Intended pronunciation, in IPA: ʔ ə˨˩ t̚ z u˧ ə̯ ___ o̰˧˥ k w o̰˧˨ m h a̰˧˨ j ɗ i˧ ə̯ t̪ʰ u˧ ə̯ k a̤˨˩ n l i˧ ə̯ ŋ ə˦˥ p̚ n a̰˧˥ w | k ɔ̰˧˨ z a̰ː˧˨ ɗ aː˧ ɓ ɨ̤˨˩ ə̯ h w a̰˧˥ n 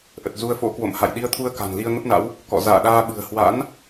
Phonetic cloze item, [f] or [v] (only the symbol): f